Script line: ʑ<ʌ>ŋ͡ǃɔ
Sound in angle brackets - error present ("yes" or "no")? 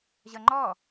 no